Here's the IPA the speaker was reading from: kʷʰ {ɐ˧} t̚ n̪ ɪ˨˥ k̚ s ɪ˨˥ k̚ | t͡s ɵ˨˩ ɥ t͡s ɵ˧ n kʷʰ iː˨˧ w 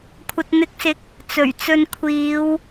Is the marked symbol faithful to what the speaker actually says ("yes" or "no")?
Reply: no